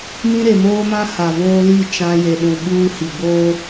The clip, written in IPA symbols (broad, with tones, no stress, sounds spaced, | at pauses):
m ĩ˦ ɾ e˨ m oː˦ m ã˦ h a˨ v oː˦ l i˦˨ t͡ʃ ã˦ j e˨ ɗ ũ˨ ɓ uː˦ h i˨ ɡ͡b oː˦